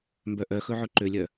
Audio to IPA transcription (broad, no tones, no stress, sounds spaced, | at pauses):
m b œ ʔ œ x ɵ ʕ ɵ ǃ ø lʲ œ